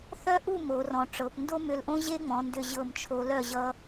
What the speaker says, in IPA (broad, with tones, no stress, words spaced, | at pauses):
θœ˥ʔu˥˧ mo˩˧ rɔ̃˩˧ʈ͡ʂɤ˩˧p ndo˥mʏ˧˩lʔõ˥ ʑe˥ŋ͡mɔ̃˩˧ndʏ˧˩ ʑɤ˧˩m t͡ʃʰo˧ lœ˧˩ ʑʌ˧